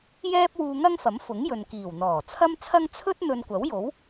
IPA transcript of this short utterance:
j ɛː˥ p̚ w uː˧ ŋ ɐ˥ ŋ f ɐ˨˥ m f ʊ˨˥ ŋ j ɵ˨ n k iː˨˩ w n̪ ɔː˨˩ t͡sʰ ɐ˥ m t͡sʰ ɐ˥ ŋ t͡sʰ ɵ˥ t̚ n̪ ɵ˧ n kʷ ɐ˨˥ w j o˨˥ w

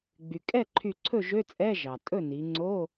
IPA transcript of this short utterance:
ɡ͡b y˩ kʼ ɛ˥˩ ǃʰ y˧˩ ǀʰ ɵ˥˩ ʒ ø˧˥˧ t͡sʼ ɛ˧˥˧ ʒ ɑ˩ tʼ ɵ˥˩ n i˩˧ ŋ͡ǀ o˧˥˧

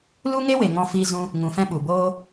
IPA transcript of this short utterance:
l u˦ ŋ e˦ w e˨ ŋ ɔ̃˧ f iː˧ z ũ˧ | ŋ ũ˨ f ɛ̃˧ ɓ u˨ b oː˦

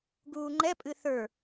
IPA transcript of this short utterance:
ɡ uː ŋ͡ǃ ɛ pʼ ɨ θ ə˞

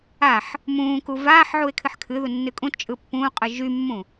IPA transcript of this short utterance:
a ħ | m ũː k u v aː ħ ʕ u e̯ kʰ ɨ ħ kʰ ɨ ð u nː ɨ kʼ ũ t t͡ʃʼ ɯ pː ũː qʼ ɯ ʒ y mː ũ

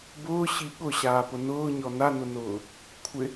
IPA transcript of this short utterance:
b ʊː ɕ i ɠ ʊ ɕ aː p ʊ n ʊː ɲ ɔ n a n ʊ n ʊː | kʷʰ ɪ

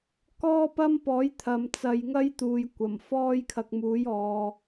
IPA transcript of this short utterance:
k ɔː˥ p ɐ˥ m p ɔː˨˥ j t̪ʰ ɐ˨ m t͡s ɐ˨ j ŋ ɐ˥ j t̪ uː˨ j kʷ ɐ˨˩ m f ɔː˥ j kʰ ɐ˧ k̚ m uː˨˥ j ɔː˨

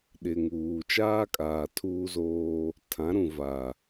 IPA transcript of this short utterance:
ɗ ɪ˨ ŋ uː˨ t͡ʃ aː˦ kʼ aː˨ tʰ uː˦ z oː˦ | tʰ ã˨˦ ɾ ũ˨ v a˨

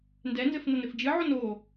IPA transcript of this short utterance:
n d ɛ n z ɘ f n ɐ n ɘ f d͡ʒ ɨ ʕ o n o

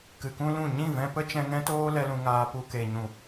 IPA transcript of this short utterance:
k ɨ˨ k ũ˦ l ũ˦˨ ɲ ĩ˦˨ v ɛ̃˧ p ə˦ t͡ʃ ɛ̃˧ ŋ ɛ̃˦ t oː˦ l ɛ˦ l ũ˧ ŋ aː˧ p u˧ k e˨ ɲ ũ˨

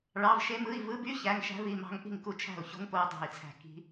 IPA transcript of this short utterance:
ɭ ɑ˧˥˧ v ʃ e˦˥ m ɯ˧˥˧ i̯ v ɯ˧˥˧ b y˦˥ ç æ˧˥˧ ŋ ʃ æ̤˦˥ v i˧˥˧ m ɑ̤˦˥ ŋ ʔ i̤˥˩ ŋ k u˥˩ t͡ʃʰ æ̤˥˩ u̯ ç o̤˦˥ ŋ p o˦˥ u̯ dˤ æ̤˥˩ i̯ t͡sʰ æ̤˥˩ k i̤˦˥

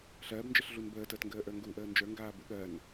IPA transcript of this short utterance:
ɬ ɜː b n d͡ʒ ə ɬ ɮ u n b əː t əː t ŋ ɡ əː ʔ ə˞ ŋ ɡ u ʔ əː n d͡ʒ ə˞ ŋ ɡ aː b ṵ ɠ ɜ n

